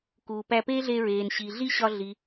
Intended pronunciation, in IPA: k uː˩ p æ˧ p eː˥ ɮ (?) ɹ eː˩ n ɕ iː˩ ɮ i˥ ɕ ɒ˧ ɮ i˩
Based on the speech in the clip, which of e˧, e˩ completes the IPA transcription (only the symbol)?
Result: e˧